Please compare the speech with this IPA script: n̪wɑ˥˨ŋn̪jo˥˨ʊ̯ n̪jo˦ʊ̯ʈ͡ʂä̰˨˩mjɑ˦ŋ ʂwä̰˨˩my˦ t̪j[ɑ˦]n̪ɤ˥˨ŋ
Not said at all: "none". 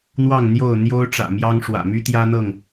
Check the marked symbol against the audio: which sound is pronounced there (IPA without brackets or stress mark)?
ä˦